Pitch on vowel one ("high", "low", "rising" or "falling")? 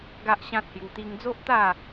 high